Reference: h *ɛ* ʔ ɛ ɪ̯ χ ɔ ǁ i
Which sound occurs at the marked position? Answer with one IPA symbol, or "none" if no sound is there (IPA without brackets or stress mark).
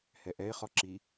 ɛ